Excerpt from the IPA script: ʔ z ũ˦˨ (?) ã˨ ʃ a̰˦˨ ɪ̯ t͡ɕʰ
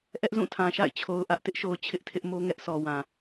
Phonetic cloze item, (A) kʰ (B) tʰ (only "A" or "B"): B